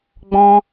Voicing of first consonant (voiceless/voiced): voiced